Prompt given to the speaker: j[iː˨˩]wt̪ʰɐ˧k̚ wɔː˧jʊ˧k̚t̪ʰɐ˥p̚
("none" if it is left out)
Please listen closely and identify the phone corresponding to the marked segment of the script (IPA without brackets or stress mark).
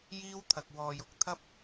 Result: iː˥